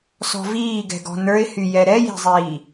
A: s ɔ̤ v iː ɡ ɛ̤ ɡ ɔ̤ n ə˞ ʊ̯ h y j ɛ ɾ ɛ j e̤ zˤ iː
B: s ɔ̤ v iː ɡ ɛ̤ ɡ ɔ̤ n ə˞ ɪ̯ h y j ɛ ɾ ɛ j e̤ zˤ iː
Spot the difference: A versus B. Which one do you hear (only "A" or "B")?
B